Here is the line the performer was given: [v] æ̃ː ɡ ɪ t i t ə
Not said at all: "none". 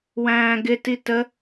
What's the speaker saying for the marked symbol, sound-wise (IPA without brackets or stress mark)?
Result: w